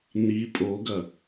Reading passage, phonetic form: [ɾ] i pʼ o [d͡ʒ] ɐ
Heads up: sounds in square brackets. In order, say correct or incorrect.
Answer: incorrect, incorrect

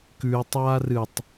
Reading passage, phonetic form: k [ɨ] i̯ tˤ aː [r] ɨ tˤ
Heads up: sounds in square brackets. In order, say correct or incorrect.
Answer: incorrect, correct

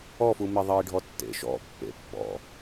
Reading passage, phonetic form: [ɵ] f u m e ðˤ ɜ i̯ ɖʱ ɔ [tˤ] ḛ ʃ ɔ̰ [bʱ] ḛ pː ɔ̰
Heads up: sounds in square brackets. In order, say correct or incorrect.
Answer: incorrect, incorrect, incorrect

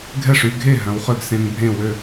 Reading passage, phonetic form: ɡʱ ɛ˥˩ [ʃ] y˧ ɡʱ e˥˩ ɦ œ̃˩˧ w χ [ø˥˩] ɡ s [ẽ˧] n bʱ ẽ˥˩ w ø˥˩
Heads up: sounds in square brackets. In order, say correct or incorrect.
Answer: incorrect, correct, correct

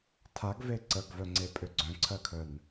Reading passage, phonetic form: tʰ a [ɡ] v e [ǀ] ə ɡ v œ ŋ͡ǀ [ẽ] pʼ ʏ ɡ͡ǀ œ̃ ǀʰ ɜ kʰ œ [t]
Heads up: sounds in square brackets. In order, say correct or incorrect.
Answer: correct, correct, incorrect, incorrect

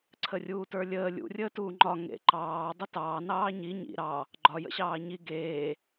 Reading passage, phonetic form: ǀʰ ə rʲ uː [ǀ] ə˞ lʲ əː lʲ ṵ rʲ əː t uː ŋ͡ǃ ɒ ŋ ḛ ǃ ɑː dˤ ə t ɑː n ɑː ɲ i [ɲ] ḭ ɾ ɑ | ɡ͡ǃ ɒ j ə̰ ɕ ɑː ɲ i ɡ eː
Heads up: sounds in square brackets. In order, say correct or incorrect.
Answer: incorrect, correct

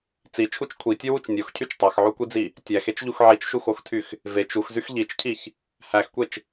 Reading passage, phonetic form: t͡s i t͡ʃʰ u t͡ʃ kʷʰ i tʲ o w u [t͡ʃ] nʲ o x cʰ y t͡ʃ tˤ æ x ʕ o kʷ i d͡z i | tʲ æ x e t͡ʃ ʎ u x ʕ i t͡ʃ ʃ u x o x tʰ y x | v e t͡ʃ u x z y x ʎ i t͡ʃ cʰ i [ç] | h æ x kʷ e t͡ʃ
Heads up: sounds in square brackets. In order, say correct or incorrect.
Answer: correct, correct

